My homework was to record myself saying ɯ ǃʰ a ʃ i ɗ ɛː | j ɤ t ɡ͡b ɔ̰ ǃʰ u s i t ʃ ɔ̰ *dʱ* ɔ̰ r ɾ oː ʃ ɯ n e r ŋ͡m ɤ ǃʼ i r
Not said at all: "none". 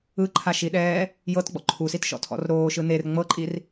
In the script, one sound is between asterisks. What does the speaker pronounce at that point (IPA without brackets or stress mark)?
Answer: tʰ